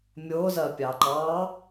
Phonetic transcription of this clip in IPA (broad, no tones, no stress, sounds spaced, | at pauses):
mʲ ʊː z ɜ pʲ ɑ ǃ ɑ